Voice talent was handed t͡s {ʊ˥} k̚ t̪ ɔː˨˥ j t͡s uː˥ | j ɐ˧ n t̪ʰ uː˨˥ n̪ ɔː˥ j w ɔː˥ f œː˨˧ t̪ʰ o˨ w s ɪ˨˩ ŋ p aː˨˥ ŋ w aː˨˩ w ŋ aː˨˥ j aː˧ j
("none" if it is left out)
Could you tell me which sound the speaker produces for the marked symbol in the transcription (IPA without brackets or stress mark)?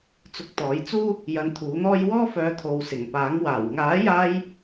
ʊ˧